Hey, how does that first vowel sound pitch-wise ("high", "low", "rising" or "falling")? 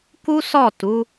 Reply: high